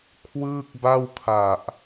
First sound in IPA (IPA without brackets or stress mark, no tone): kʰ